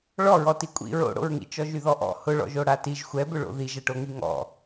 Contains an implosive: no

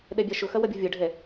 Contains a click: no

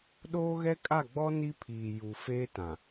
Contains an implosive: yes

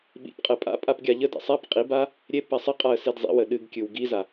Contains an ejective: yes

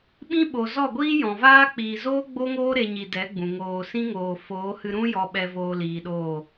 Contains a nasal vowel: yes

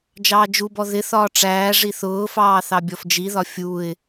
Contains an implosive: no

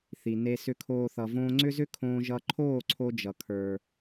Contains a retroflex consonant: no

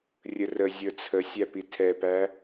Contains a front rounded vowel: no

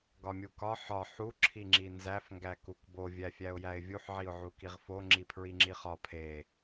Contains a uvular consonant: yes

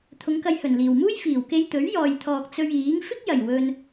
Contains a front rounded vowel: no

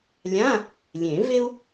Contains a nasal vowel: yes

